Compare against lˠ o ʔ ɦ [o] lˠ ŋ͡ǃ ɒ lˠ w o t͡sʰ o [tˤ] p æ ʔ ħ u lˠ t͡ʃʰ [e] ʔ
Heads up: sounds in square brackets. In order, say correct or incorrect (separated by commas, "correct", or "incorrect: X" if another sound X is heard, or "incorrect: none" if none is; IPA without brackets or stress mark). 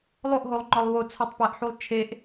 correct, correct, correct